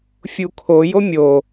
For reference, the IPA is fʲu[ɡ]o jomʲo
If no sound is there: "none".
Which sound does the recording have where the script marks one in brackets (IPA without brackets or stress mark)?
kʰ